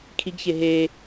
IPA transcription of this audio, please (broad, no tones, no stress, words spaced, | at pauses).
kʰiɡçe ɦe